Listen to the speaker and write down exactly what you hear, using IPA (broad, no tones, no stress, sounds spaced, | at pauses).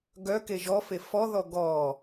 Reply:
ɡ œ k e ʒ ɔ f e f ɔ ð ɔ ɡ ɔ